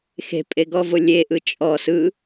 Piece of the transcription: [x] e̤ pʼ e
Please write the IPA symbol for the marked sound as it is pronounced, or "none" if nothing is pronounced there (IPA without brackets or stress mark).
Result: x